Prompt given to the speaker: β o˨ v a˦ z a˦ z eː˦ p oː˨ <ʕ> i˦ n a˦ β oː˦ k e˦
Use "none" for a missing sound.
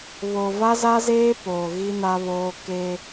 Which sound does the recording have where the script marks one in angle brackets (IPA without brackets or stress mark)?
ɣ